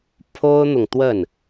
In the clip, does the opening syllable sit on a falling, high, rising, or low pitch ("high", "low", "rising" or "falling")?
high